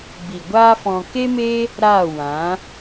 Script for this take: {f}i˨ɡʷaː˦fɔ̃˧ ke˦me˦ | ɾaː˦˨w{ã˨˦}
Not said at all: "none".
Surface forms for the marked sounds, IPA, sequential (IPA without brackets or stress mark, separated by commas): b, ã˨˦